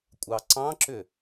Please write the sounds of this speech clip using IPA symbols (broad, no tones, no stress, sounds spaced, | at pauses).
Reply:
kʷʼ ɑ ǀ ɑ̃ ǁ ʏ